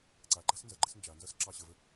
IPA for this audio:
ǀ a ɡ͡ǃ a s n z ʌ ɡ͡ǃ ɘ s n d͡ʒ a n z ʌ s ǁ ɑ ɕ ə v ə

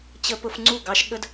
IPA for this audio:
t͡ɕ ə˧ p ʊ˧ f ŋ͡ǀ u˦˨ ɡ ɑ˦ ʃ ɠ ə˦ d

